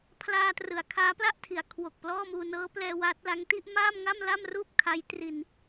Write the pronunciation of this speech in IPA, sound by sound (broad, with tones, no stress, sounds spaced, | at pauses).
pʰ l aː˧ t r ɯ˩˦ a̯ kʰ aː˦˥ p l a˥˩ ʔ tʰ i˩˦ a̯ kʰ w o˨˩ k̚ p l ɔː˥˩ m uː˧ n ɤː˦˥ p l ɛː˧ w aː˦˥ t̚ l a˦˥ ŋ t i˥˩ ʔ m aː˥˩ m ŋ a˥˩ m l a˥˩ m r uː˥˩ p̚ kʰ a˦˥ j t r i˧ n